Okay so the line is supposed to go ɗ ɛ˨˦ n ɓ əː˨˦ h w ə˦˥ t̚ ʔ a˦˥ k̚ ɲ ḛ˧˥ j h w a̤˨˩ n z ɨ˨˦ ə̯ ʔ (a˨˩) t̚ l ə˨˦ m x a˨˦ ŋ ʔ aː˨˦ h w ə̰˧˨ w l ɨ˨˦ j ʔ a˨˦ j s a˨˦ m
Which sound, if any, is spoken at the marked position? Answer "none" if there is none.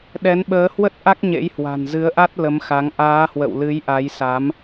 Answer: a˦˥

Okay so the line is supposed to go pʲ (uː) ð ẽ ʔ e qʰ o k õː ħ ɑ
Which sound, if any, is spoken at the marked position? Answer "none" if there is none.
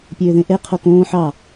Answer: øː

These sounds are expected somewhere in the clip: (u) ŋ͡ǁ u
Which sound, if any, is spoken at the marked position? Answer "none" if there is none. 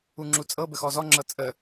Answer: u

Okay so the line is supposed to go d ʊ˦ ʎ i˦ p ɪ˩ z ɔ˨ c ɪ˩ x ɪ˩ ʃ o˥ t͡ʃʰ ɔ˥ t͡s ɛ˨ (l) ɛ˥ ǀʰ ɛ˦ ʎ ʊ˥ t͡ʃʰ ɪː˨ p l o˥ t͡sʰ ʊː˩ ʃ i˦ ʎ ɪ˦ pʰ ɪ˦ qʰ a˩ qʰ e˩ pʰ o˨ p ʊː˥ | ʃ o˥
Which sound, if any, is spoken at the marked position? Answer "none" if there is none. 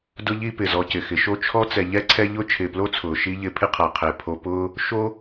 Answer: ʎ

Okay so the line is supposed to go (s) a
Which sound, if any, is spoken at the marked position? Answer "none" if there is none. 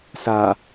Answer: s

